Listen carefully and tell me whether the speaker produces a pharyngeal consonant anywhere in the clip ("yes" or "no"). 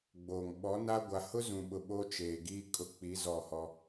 no